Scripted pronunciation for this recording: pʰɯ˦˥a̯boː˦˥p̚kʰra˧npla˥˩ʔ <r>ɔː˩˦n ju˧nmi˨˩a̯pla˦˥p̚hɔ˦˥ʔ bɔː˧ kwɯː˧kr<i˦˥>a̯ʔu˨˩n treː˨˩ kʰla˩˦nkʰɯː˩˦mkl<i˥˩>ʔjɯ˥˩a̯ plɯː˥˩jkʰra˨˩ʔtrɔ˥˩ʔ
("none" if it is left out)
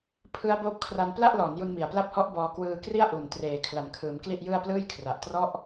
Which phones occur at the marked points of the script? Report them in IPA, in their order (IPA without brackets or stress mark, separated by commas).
l, i˥˩, i˥˩